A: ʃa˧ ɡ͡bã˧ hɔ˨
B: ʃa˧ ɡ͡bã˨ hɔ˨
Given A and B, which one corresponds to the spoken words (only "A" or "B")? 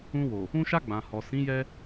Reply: B